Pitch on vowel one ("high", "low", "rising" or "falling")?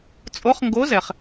rising